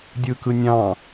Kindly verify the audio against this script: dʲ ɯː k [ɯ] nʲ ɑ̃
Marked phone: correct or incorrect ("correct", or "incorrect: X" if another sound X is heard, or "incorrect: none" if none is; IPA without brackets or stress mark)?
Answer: correct